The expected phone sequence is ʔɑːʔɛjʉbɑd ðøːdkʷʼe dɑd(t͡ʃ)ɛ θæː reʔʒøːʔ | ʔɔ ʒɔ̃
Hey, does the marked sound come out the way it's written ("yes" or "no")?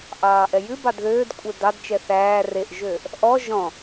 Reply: yes